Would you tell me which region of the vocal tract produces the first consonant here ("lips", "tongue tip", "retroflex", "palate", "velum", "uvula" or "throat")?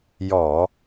palate